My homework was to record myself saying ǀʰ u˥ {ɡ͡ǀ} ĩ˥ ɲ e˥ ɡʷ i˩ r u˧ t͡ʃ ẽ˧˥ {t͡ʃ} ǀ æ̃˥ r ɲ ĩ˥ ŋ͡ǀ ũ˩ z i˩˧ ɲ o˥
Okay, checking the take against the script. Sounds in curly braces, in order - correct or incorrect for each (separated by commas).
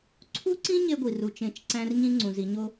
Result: incorrect, correct